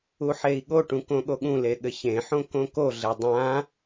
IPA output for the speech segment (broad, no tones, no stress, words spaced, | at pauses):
uħei̯ɠo ʈũkõɠoɠũ leɠɘçẽ ħõkõko ɮedˤã